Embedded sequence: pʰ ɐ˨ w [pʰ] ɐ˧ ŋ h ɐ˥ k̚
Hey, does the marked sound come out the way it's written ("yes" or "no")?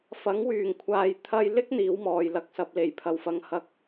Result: no